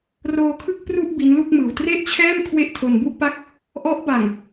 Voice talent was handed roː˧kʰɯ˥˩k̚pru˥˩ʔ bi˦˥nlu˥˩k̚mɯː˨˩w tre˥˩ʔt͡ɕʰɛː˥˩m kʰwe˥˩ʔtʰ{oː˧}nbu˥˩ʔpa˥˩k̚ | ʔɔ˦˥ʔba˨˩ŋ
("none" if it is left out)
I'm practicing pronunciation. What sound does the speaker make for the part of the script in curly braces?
o˧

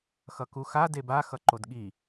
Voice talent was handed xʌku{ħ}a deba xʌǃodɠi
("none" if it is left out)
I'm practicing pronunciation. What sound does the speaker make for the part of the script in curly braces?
x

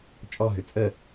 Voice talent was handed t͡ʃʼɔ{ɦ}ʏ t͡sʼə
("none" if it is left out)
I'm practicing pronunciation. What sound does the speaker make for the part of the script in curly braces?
ɦ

